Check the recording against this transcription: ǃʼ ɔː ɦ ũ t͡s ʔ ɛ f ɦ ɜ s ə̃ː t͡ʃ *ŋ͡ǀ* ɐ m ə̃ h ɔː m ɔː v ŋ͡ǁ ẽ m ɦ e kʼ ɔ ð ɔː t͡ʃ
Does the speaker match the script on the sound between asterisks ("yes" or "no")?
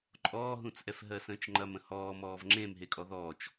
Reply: no